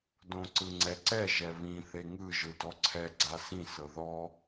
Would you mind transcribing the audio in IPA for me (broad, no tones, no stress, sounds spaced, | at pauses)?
d õ ǀ ɯ ŋ͡ǀ ɛ ǀ ɛ ʒ ɛ β ĩ θ e ŋ ɯ ʒ ɯ d ɔ ǀʰ ɛ ɡ͡ǀ a s ĩ s ɤ ð ɔ